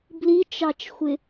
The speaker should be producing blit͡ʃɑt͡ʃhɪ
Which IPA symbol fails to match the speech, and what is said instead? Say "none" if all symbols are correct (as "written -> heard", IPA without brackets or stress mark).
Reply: h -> xʷ